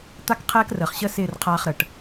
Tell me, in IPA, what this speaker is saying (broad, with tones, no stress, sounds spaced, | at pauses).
t̪ a˦ k qʰ ɛː˦ k r əː˨ χ ɕ ə˦ s ɪː˦˨ r qʰ aː˦ χ ɾ ə˨ ʈ